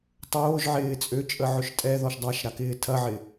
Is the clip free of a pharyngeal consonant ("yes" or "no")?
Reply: no